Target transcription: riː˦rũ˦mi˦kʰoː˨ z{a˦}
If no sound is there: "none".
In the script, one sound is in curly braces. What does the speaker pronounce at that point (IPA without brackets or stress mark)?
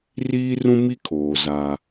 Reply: a˦